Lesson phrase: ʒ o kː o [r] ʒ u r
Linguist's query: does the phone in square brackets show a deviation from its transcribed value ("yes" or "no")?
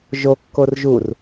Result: no